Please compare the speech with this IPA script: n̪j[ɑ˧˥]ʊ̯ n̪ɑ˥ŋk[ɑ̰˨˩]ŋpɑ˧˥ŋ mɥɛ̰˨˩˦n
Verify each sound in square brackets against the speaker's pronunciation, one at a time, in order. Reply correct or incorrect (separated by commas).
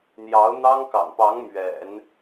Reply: correct, correct